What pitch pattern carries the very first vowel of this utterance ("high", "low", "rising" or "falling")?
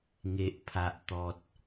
low